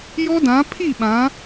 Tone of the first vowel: high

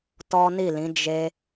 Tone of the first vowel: high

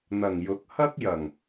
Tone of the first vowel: low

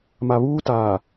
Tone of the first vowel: low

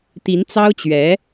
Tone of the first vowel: rising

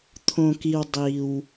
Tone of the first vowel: low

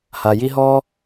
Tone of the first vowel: low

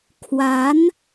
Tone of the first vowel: rising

